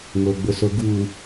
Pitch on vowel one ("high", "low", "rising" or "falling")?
low